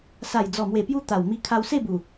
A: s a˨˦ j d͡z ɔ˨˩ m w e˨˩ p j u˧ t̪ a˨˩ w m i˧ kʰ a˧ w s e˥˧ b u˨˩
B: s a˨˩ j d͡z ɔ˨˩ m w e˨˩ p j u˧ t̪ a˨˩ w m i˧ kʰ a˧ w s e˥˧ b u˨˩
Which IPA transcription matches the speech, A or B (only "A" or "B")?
B